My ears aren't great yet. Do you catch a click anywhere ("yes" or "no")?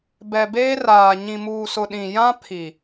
no